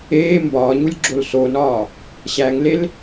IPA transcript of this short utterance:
eː m b ɒː ɲ u lʲ ɡ͡ǁ o l s o n ɒː | ɕ æ ŋ l e l

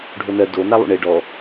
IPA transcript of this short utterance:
ɖʱ o n ɜ d o n a lˠ ṵ ɳ e ɖ ɔ

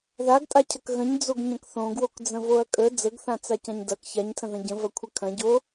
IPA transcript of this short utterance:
ð a ɡ tʼ a cʰ ɐ k ɣ ə̃ ɲ d͡z o ɡ ɲ ɐ̃ k θ õ ɡ w o k d͡z ə̃ v o ɐ̯ kʼ ə d͡z ə ɡ θ ã t͡s a c ã ɲ d ɐ k ç a ɲ tʰ ə̃ ð ɐ̃ ɟ ə̃ v ɐ kʷʰ ə kʰ ɐ̃ ɟ o

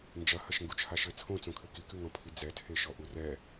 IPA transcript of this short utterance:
n d͡ʒ ɐ h ɐ ʃ ŋ ɡ u t͡ʃʰ a ʃ ɘ t͡sʰ õ t͡s õ kʰ ɘ k i k ɨ ŋ ɔ̃ pʰ i d͡z ɛ tʰ e ʃ ɔ ʔ u r ɛ

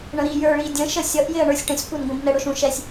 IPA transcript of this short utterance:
ɳ ə̃ ɾ i j ə˞ ɭ i dʲ ə̃ ʃ ə sʲ ʌ ʔ j ɪ ɐ̯ ɳ ə˞ sʲ ʈ ə̃ sʲ kʷ ɛ n ɡʷ ə̃ b n ɛ ɽ ʊ ʃ ũ ʃ ɛ sʲ

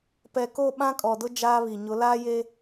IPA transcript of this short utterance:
p ɛ˨ k o˦˨ ɓ ã˦ kʼ ɔ˨ d ʊ˦ d͡ʒ aː˦ β i˨ ɲ ʊ˨˦ l aː˦ j e˦

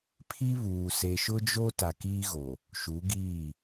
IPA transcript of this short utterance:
pʰ i˦ β uː˨ s e˨ ʃ ʊ˦ d͡ʒ o˦ t a˨ k iː˦ ɣ o˨ | ʃ u˨˦ ɡ iː˦˨

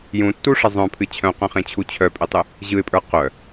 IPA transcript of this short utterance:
j ũ tː u ʂ ə zˤ œ̃ pʰ ɨ t͡ɕʰ œ̃ q œ̃ χ ẽ t͡ɕʰ u t͡ɕʰ œ pʼ e tˤ ɨ | ʑ ɯ ɪ̯ pʼ ə˞ q œ

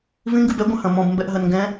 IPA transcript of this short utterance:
v ĩ ŋ ɡ ɨ b ɛ ɡʷ ɐ̃ h ɐ̃ m ɔ̃ b m b ɛ ʔ ɦ ɐ n ŋ ɡ ɛ̃

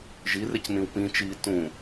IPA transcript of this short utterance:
ʒ i r e c n ĩ w p ĩ t͡ʃ iː t ũ

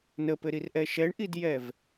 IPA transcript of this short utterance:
n ə p ɘ ɾ i r ʔ ɛ ʃ ɛ ɳ ʔ i d j ɛ v

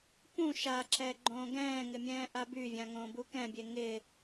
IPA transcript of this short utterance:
p ũ ʃ a ǁ ɛ ɡ͡ǃ õː ɡ ɛ̃ː ŋ ɪ mʲ ɛ̃ː ʔ a b y vʲ ã ŋ õː b u k ɛ̃ bʲ e ŋ ɪ

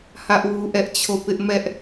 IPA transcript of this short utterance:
h ä˦ ʔ w u˦ ʔ ɛ˦ ʔ t͡ɕʰ o˦˨ p ɪ˦ ʔ m ɛ˦ ʔ

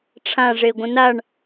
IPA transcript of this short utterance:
ʈ͡ʂʰ ã ʐ e ɡʷ ə̃ n a ɳ

